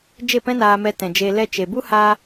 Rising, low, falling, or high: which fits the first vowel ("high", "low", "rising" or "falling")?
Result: falling